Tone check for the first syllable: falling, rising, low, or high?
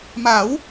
rising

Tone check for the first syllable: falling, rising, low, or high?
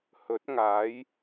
rising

